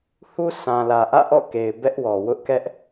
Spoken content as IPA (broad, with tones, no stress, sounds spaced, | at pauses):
h u˦ sʰ ã˨ l ä˨ ʔ ä̰˦˨ ʔ ɔ̰˦˨ k e˨ ɪ̯ b ɛ˦ ʔ w ɔ˨ w ʊ˦ ʔ k ɛ˦ ʔ